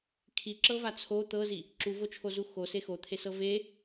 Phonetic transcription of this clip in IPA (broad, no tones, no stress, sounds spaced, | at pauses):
kʰ i ǁ ɤ v a t͡sʰ o t̪ ɤ z i | ǁ u v o t͡ʃʰ o z u x o s e x o t̪ʰ e s ɤ v e